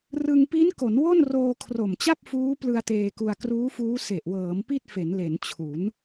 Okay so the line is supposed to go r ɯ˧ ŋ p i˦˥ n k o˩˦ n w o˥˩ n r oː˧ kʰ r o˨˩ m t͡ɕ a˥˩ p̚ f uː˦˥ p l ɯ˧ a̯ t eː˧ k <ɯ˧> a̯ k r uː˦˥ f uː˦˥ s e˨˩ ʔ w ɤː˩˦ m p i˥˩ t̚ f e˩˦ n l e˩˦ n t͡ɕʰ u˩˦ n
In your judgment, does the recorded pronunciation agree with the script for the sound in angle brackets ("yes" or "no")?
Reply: no